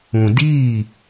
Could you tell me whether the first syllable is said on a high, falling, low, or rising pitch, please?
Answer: low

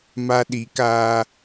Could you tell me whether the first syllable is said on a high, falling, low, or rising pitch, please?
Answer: high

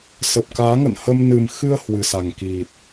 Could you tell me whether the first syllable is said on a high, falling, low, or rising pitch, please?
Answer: low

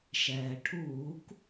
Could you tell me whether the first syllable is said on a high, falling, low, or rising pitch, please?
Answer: low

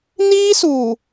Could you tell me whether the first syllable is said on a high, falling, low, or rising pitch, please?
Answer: high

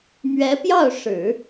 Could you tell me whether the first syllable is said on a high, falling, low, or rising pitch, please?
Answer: rising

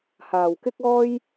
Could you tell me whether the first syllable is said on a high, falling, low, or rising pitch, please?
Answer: low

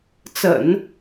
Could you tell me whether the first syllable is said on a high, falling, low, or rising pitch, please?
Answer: low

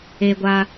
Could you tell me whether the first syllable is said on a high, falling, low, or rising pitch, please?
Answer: high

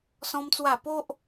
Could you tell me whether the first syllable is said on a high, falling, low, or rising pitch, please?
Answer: high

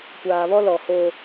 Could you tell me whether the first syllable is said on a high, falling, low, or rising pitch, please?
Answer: low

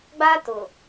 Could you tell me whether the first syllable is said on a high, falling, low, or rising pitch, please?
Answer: high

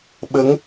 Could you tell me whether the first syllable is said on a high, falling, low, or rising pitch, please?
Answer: rising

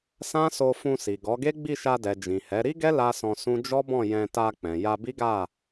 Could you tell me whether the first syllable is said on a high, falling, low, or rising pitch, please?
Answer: high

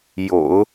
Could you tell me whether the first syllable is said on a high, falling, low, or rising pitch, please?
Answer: low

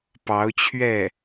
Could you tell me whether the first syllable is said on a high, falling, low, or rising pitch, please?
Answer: rising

